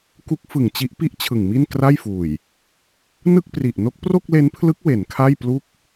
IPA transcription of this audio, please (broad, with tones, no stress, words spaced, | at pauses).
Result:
ku˦˥k̚fɯ˨˩ŋt͡ɕi˦˥ʔ pi˥˩ʔ t͡ɕʰɯ˨˩ŋmi˥˩n kra˥˩jfuː˨˩j | nɯ˥˩k̚pri˨˩ʔ no˦˥k̚pro˥˩k̚le˦˥npʰlɯ˦˥k̚ we˩˦nkʰa˥˩jplu˥˩k̚